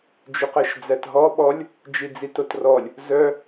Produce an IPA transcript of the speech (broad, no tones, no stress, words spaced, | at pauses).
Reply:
d͡ʒʏqɜʃd͡zætɦɔ ɓɔlʲ | d͡ʒid͡zitotrɔlʲ | zœ